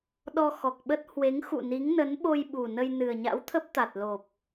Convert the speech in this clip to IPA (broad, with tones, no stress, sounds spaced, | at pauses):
ɗ ɔ˧ x ɔ˨˩ k̚ ɓ ə˦˥ t̚ h w e˨˦ ŋ x ṵ˧˨ n i˨˦ ŋ n ə˨˦ n ɓ o˧ j ɓ u˨˩ n ə˧ j n ɨ˨˩ ə̯ ɲ a̰˧˥ w t̪ʰ ə˦˥ p̚ t̪ a˨˩ t̚ l o˨˩ p̚